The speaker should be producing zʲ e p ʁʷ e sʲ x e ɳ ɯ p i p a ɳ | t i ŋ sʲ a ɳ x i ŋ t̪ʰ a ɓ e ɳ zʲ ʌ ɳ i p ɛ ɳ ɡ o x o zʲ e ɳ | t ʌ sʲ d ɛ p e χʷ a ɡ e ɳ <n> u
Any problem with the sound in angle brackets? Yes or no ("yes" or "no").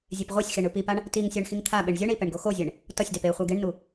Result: no